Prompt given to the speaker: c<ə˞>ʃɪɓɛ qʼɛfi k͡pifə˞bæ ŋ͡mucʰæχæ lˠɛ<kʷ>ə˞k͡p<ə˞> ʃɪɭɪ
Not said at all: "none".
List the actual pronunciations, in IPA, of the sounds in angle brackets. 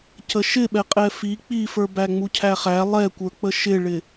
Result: ə, kʷ, ə

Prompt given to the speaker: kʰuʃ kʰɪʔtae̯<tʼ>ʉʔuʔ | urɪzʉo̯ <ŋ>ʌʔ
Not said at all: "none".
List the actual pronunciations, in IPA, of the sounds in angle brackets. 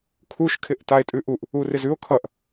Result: tʼ, kʰ

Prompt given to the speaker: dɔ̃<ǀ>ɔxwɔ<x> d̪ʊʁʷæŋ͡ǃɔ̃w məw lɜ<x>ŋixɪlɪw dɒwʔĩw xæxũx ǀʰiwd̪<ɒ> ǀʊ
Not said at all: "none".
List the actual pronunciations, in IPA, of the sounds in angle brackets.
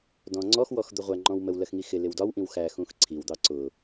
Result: ŋ͡ǀ, x, x, ɑ

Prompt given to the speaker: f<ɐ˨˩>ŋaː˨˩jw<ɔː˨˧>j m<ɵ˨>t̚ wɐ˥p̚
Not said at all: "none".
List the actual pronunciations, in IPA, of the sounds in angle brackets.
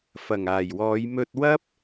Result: ɐ˨˩, ɔː˨˧, ɵ˧

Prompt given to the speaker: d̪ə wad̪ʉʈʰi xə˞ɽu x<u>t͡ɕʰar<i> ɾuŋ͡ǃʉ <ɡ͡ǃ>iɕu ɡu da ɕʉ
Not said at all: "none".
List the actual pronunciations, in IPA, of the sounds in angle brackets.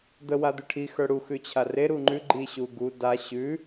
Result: ʉ, e, ɡ͡ǃ

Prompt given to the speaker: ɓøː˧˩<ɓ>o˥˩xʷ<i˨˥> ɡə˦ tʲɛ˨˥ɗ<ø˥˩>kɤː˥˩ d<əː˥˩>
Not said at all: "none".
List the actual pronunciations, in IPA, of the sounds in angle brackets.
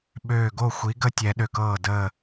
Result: ɡ, i˨˥, ø˧˩, əː˧˩

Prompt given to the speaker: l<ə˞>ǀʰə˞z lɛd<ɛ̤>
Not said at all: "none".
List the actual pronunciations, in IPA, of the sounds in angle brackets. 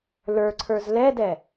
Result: ə˞, ɛ

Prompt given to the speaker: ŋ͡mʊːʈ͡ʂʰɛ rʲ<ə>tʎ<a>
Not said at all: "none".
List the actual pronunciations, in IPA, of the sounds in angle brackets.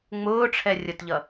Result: ə, ʌ

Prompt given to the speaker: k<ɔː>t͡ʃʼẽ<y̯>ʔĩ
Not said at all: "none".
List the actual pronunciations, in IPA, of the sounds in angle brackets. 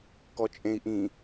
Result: ɔ, i̯

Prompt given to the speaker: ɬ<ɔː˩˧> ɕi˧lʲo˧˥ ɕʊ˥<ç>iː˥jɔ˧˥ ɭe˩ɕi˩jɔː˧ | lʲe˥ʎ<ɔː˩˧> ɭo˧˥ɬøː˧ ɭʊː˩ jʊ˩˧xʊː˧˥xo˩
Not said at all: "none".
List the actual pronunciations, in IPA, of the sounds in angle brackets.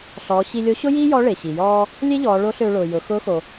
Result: ɔː˩˧, j, ɔː˩˧

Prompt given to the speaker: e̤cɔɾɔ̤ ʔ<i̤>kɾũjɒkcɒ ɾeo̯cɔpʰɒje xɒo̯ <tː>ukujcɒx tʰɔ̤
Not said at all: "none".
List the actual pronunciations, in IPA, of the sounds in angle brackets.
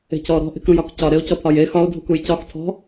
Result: e̤, dʱ

